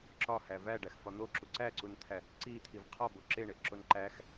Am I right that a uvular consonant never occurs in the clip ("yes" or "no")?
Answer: no